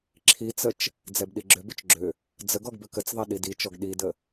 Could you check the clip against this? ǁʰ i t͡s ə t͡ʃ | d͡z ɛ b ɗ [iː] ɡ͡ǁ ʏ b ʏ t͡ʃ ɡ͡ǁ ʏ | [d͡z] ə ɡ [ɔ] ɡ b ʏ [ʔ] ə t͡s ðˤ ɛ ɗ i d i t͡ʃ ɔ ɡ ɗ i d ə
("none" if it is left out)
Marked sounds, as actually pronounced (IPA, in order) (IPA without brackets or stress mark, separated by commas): i, d͡z, ɔ, k